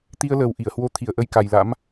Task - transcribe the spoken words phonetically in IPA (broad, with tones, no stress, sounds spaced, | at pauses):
t̪ i˧ ə̯ l əː˨˩ w ʔ i˧˩ ə̯ h w o˧ t̪ʰ i˧˩ ə̯ ʔ ə˧ j k a˨˩ j l a̰˧˥ m